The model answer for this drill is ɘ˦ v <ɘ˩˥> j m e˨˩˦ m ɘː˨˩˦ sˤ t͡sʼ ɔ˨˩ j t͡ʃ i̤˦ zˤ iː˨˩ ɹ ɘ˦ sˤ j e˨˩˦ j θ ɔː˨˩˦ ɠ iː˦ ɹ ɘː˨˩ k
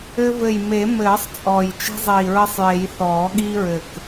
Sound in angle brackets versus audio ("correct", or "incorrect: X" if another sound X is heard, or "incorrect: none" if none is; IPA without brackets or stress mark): incorrect: ɘ˨˩